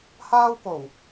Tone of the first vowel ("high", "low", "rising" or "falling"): high